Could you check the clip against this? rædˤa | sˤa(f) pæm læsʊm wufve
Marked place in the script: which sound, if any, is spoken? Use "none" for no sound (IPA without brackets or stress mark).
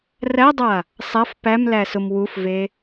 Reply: f